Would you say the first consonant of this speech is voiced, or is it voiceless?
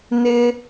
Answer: voiced